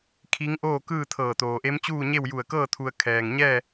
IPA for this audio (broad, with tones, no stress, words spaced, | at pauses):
kʰi˧˥ŋʔoː˥˨kɯː˥˨t̪ʰɤː˧˩ t̪oː˩ʔe˧˥mt͡ɕuː˥˨ɲe˥˨w ju˧˩ə̯kɤː˥˨ t̪ʰu˧ə̯ kʰɛː˩ŋɲɛː˥˨